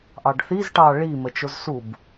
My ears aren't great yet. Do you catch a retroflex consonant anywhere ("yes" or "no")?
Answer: yes